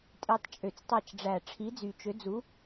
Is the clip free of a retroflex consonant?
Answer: no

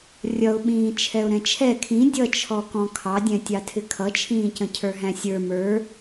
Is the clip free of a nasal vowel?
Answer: no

